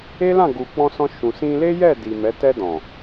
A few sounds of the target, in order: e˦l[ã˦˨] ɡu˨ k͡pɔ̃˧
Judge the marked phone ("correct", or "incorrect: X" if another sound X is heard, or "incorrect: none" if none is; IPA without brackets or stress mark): correct